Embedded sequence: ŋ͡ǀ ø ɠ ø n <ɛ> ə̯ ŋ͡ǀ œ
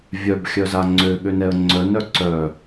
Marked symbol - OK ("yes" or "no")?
yes